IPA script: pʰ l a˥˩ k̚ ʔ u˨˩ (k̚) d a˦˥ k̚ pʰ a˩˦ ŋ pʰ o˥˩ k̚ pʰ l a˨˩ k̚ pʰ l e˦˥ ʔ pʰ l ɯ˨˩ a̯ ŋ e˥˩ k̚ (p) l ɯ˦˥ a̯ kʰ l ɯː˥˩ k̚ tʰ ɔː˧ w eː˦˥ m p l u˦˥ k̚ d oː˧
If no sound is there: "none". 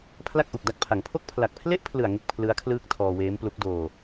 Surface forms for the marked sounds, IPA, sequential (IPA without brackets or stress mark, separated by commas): k̚, pʰ